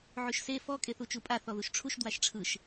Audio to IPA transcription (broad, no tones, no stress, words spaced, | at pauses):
ʕyʃse fɔ kʼeθut͡ʃupʼa θɔðuʃʈ͡ʂʰuʃ dwaʃʈ͡ʂʰɯʃ